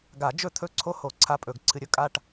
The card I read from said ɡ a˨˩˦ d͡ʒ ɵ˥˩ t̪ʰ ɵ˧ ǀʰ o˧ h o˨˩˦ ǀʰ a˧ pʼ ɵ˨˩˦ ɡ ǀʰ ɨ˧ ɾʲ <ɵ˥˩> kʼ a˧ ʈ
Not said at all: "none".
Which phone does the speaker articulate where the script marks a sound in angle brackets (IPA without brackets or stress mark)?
ɵ˧